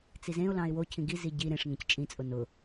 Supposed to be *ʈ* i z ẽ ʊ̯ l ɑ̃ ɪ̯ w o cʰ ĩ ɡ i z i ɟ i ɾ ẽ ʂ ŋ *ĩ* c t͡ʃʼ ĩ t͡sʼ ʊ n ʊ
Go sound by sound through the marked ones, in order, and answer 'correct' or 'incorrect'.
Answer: incorrect: t͡s, incorrect: ẽ

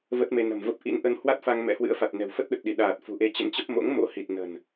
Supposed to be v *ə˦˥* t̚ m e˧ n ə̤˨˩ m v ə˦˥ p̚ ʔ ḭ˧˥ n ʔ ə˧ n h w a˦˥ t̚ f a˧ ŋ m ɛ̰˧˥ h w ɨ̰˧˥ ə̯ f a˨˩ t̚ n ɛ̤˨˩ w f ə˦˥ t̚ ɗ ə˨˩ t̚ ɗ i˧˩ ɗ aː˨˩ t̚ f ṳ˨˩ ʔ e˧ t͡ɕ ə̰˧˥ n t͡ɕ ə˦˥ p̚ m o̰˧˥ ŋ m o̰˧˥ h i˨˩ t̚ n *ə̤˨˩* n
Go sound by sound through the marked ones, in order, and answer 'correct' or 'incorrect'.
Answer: correct, correct

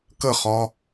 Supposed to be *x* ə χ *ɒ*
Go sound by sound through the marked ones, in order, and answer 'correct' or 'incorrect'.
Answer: incorrect: k, correct

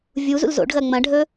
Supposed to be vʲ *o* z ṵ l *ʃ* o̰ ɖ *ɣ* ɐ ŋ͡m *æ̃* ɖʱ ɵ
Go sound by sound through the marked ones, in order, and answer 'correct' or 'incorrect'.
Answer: incorrect: u, incorrect: z, correct, incorrect: ɐ̃

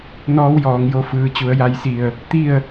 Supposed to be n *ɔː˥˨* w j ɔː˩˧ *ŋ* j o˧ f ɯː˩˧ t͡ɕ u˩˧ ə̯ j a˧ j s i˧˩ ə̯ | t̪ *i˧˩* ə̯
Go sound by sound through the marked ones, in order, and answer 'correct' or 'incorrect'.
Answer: incorrect: ɔː˧˥, correct, incorrect: i˥˨

